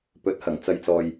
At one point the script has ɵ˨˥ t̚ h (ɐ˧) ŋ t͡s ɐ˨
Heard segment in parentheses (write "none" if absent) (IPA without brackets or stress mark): ɐ˨˩